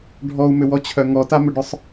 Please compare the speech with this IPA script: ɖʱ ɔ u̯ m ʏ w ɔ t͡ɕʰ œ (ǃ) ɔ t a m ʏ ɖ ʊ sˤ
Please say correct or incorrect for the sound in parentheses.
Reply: incorrect